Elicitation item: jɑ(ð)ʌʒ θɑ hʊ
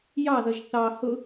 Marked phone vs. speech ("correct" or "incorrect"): correct